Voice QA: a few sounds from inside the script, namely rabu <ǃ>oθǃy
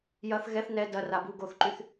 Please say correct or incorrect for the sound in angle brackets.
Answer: incorrect